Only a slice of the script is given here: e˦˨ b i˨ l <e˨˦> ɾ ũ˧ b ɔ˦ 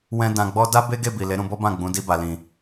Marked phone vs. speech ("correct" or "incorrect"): correct